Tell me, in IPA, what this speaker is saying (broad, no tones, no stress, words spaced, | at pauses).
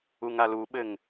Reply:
uŋaluɓɘŋ